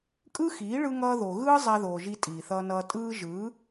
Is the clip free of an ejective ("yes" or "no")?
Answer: no